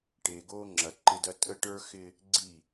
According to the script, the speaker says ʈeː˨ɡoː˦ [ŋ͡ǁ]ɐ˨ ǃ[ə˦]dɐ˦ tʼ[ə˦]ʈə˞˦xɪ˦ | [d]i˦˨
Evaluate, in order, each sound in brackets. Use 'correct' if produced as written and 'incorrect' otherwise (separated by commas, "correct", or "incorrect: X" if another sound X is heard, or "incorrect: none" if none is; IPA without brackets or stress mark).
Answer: correct, incorrect: ɪ˦, correct, incorrect: ɡ͡ǀ